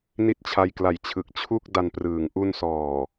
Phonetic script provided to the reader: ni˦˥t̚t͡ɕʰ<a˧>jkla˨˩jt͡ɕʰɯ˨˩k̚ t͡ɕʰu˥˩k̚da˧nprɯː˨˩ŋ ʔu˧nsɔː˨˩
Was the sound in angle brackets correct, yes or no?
yes